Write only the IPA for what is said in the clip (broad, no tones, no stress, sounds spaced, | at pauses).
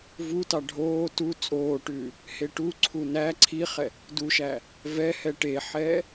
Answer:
v u t ɑ ɖʱ oː t u t͡sʼ oː ʈ ʉː | h e ʈ u ǀʰ u n æ ǀʰ i χ ɛ | d u ʃ æ | v ɛ h ɛ ʈ e ħ ɛː